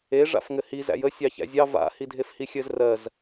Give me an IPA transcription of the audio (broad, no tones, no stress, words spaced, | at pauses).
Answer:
e ʐa̰fŋɘhi zæ̰jə sʲɑçæ̰zʲɑ va̰ hidʱefhixʲɘz rɜz